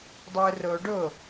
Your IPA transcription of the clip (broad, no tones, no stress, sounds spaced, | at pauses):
dˤ ɵ ʊ̯ r o ɖ o